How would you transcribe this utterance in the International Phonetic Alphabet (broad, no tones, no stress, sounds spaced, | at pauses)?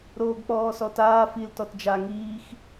ɾ oː ɡ k͡p ɔː s ɔ t aː f i l t ɔ t d͡ʒ a ŋ iː x